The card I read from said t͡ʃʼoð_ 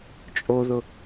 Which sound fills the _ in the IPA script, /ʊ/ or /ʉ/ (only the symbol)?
ʊ